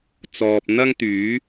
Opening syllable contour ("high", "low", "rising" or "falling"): low